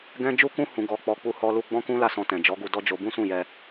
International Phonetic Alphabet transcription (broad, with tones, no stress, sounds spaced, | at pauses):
ɡ ɛ̃˦ d͡ʒ u˦ k ũ˦ h ũ˧ ɡ ɔ˧ k͡p ɔ˧ k͡p u˧ h ɔ˧ l u˧ ɡ͡b ɔ̃˦ k ũ˦ l a˦˨ s ɔ̃˧ t ɛ̃˨ d͡ʒ ɔ˨˦ ɡ u˧ d ɔ˦ d͡ʒ o˧ b ũ˦ s ũ˦˨ j ɛ˧